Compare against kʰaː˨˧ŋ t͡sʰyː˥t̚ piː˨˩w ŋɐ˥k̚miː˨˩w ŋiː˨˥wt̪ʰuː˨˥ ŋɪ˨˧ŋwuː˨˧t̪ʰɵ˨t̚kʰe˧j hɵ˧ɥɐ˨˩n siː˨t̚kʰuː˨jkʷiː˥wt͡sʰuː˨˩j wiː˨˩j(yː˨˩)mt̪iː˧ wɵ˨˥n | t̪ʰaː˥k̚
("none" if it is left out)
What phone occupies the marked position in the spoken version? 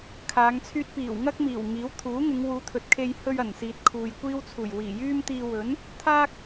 yː˥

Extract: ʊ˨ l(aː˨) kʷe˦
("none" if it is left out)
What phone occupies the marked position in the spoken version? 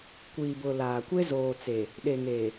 aː˨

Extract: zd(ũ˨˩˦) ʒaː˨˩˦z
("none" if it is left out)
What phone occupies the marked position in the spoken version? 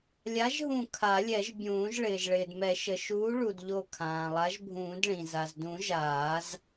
ũ˨˩˦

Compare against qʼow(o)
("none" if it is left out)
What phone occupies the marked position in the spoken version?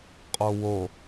o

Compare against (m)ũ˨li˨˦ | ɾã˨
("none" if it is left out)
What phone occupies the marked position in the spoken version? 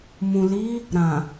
m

